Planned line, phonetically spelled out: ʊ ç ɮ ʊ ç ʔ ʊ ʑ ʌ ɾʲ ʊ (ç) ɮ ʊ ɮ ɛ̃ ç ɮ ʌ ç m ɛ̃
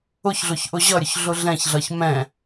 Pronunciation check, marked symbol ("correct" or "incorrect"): correct